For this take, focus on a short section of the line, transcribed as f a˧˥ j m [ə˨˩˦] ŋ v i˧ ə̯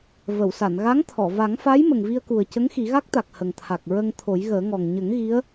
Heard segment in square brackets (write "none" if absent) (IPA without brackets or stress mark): ə˨˩